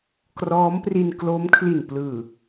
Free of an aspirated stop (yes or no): no